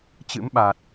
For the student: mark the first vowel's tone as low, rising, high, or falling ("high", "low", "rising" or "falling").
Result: rising